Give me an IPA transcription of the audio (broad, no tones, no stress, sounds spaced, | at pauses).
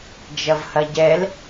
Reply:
d͡ʒ ɐ v h ɐ ɟ ɛ l